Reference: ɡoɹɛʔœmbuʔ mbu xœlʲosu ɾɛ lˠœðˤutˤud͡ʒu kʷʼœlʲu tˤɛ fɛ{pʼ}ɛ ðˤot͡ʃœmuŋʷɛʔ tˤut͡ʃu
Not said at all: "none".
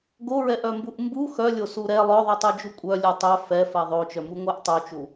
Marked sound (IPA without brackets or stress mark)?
f